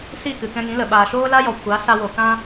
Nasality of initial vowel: oral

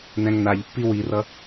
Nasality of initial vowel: nasal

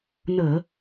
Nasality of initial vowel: oral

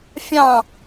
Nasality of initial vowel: nasal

